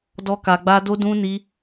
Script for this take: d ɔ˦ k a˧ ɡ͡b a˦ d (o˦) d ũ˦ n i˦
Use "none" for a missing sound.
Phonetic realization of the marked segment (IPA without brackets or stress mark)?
o˦